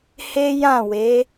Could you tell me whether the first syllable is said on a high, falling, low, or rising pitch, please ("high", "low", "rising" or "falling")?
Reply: high